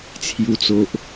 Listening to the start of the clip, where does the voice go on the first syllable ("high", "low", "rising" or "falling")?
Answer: low